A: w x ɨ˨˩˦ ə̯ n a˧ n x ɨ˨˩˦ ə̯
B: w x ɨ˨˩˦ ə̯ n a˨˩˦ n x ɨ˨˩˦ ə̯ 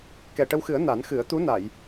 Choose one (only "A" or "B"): B